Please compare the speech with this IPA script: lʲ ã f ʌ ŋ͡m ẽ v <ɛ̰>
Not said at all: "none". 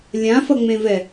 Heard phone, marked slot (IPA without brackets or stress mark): ɛ